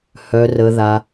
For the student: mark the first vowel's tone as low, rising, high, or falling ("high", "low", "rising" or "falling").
low